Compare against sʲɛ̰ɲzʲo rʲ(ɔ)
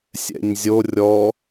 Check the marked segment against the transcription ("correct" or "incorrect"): correct